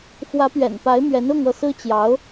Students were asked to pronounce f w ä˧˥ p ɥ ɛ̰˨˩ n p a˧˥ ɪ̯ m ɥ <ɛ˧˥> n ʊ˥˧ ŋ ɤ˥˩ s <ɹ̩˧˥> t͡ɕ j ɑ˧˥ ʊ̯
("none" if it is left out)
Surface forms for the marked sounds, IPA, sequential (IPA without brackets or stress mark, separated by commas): ɛ˧˥, ɹ̩˥